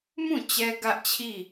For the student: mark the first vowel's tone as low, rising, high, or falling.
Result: falling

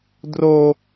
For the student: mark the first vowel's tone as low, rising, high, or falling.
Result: high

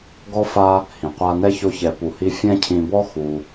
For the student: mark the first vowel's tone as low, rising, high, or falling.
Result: high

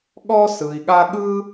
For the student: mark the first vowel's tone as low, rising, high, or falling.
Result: high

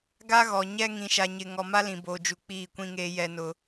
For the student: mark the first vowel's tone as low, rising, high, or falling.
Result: high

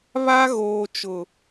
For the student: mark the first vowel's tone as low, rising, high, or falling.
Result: high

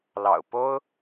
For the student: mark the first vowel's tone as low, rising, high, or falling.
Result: low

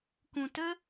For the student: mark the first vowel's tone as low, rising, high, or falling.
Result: low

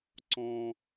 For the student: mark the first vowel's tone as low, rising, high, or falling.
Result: high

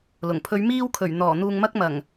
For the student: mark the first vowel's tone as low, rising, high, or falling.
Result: low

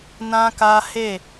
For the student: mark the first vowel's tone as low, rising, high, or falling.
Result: high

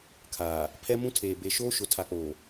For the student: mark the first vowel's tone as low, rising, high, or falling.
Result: low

